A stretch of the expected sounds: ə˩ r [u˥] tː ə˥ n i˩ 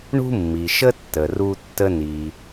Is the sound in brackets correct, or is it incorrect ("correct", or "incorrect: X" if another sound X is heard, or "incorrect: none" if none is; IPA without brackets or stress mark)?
correct